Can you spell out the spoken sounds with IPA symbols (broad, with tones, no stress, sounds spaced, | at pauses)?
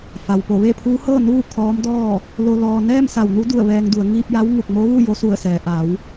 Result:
f a˩ w p o˧˩ ʋ e˥˨ pʰ uː˧˥ h ɤː˥˨ n uː˥˨ kʰ ɔː˧˥ m d ɔː˥˨ | l o˧ l ɔː˧ n ɛː˥˨ m s a˧˩ w n u˧˥ d u˧˩ ə̯ ʋ ɛː˧ ŋ d u˩˧ ə̯ ŋ iː˧ p̚ j a˧˥ w ŋ u˧˩ k̚ m o˧˥ ʋ u˥˨ j o˧˥ s u˧˩ ə̯ s ɛː˩ ʔ a˩˧ w